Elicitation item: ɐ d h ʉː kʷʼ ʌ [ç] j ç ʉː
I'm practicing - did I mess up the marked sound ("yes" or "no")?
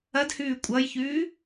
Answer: yes